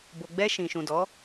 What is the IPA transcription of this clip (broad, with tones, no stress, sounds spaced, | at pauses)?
b o˨ ɡ͡b ɛ˧ ʃ ĩ˨ ʃ ũ˨ d ɔ˨˦